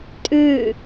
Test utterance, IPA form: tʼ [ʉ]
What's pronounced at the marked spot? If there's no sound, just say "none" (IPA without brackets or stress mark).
ʉ